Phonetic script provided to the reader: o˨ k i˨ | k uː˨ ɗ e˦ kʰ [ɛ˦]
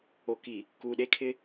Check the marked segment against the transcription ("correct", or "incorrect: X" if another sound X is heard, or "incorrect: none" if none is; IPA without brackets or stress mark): incorrect: ɪ˦